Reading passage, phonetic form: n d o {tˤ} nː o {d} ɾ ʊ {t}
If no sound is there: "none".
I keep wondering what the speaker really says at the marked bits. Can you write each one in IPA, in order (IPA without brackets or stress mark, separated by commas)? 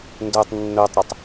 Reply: tˤ, tˤ, tˤ